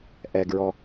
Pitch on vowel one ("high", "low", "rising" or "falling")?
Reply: low